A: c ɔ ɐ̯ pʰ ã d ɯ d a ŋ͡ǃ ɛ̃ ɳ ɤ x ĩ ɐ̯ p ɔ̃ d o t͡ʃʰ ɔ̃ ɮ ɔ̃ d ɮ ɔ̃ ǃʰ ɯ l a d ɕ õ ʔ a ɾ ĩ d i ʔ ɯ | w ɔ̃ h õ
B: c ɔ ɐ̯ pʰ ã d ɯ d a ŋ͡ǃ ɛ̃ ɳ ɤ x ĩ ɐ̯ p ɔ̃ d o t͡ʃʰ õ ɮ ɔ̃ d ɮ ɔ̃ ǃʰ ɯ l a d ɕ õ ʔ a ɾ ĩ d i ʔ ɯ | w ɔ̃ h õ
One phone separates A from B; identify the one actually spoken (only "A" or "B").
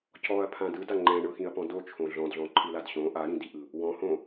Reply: B